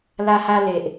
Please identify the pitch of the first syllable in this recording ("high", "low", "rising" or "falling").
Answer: high